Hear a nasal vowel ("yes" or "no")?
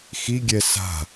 no